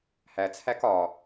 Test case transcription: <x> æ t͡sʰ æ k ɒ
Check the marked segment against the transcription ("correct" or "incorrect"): incorrect